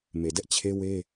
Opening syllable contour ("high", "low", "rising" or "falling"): low